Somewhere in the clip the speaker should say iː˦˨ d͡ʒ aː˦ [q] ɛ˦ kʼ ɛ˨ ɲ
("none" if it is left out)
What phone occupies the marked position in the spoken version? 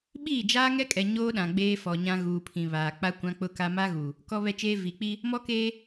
ŋ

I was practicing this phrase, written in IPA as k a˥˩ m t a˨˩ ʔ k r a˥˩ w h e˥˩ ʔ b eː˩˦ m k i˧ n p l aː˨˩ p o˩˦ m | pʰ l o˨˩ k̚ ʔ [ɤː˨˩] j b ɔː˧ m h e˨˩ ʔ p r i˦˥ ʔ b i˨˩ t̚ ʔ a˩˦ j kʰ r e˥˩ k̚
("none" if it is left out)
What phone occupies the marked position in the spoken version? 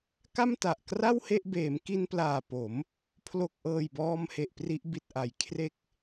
ɤː˨˩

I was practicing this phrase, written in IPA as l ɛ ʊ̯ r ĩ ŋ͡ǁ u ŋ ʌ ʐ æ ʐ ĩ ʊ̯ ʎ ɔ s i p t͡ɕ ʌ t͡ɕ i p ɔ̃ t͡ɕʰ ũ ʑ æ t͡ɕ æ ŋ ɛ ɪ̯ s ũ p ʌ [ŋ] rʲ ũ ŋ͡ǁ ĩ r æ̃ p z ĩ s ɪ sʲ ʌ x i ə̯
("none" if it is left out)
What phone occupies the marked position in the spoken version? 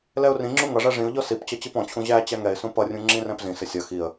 none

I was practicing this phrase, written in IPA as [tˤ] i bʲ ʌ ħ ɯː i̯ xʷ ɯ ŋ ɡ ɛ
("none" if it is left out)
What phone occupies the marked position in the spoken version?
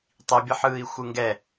tˤ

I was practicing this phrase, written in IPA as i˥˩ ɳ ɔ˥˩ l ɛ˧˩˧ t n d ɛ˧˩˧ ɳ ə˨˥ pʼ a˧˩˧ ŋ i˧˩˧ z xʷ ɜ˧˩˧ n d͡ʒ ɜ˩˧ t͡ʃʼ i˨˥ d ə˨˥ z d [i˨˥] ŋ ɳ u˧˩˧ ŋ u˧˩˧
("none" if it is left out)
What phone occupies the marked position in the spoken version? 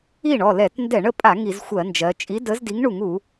i˨˥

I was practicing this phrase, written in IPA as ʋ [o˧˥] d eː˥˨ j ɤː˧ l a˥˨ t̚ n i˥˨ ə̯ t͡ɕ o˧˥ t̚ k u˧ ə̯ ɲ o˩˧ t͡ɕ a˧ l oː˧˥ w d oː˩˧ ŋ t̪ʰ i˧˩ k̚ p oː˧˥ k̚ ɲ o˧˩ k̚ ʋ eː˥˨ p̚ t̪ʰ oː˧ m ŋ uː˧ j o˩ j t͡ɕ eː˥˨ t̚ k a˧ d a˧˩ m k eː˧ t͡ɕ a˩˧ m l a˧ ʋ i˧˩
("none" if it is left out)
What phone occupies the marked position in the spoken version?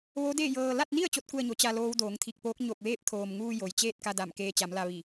o˧˥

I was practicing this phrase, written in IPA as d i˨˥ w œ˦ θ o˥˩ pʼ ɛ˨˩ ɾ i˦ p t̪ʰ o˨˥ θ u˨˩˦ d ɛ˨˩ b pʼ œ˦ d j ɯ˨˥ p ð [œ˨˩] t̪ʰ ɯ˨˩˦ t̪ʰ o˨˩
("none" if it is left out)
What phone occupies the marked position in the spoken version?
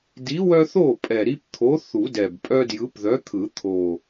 œ˨˥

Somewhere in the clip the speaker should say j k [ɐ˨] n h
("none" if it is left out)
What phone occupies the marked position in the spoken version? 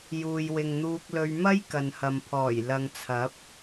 ɐ˨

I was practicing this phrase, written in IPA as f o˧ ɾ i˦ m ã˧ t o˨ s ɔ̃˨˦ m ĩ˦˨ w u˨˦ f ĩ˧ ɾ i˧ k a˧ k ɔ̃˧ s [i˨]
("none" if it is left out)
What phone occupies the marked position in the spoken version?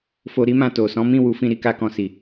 i˨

